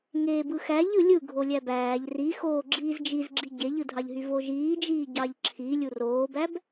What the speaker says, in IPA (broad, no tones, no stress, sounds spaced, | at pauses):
ŋ eː b ɯ x æ ʎ ɯ lʲ ɯ ɡʱ o lʲ æ b æː ʎ r i x oː ɡ͡ǁ iː z d͡ʒ i z ɡ͡ǁ i ɟ e ʎ ɯ dʱ ɑ ʎ ɦ y v o ʒ iː d͡ʒ iː ɟ ɑ ʎ ǁʰ i lʲ u r oː b æ b